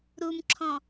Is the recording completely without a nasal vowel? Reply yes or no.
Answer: no